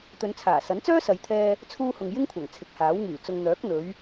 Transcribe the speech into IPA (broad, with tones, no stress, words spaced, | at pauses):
t̪ɵ˨˧nt͡sʰaː˨˩sɐ˨˥nt͡sœː˥ sɐ˨˧jt̪ʰɛː˧ | t͡sʰuː˧hʊ˨ŋ jɪ˥ŋkʷʰɐ˨˩ŋ t͡sʰɪ˨˥k̚haː˨˥w ŋyː˨˩ t͡sʊ˨ŋ n̪œː˨˥k̚n̪ɵ˨˧ɥ